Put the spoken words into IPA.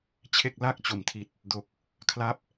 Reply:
t͡ɕʰ e˥˩ k̚ l a˥˩ k̚ t͡ɕ o˩˦ m tʰ i˨˩ t̚ | d o˨˩ k̚ | kʰ l a˦˥ p̚

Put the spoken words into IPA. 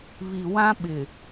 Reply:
β i˨ w ã˦ ɓ ɪ˨

